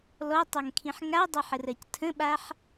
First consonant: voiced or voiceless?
voiced